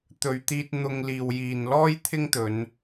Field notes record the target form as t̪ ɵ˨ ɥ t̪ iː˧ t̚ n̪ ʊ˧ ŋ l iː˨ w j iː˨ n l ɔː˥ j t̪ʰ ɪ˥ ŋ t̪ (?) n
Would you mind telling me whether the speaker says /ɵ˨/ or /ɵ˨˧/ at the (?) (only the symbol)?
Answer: ɵ˨˧